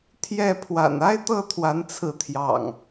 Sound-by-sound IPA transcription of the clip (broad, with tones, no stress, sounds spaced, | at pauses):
t̪ʰ j ɛ˥˨ pʰ w a̰˨˩ n a˦ ɪ̯ t̪ ɤ˥˨ t̪ʰ w a˨˦ n t͡sʰ ɹ̩˨˦ t̪ʰ j ɑ̰˨˩ ŋ